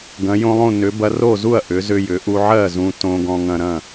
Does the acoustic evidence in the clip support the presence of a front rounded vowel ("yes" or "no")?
yes